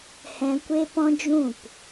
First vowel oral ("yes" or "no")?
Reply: no